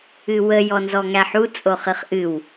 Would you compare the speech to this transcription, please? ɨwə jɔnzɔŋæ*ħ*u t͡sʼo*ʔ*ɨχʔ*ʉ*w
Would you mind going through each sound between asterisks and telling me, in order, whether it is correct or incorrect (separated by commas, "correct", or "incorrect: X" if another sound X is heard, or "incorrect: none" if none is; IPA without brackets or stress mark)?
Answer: correct, incorrect: χ, incorrect: ɨ